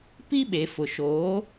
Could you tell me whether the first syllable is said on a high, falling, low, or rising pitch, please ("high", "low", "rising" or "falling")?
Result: high